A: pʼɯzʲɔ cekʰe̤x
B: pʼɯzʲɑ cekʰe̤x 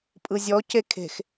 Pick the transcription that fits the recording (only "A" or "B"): A